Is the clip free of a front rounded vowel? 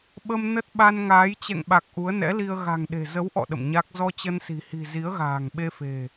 yes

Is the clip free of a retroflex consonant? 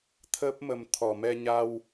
yes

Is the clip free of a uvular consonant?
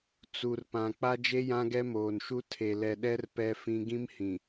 yes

